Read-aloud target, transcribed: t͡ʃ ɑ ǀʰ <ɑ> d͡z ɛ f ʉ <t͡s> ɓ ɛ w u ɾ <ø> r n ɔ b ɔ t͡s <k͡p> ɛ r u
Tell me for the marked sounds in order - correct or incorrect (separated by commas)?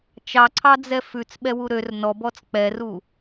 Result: correct, correct, correct, correct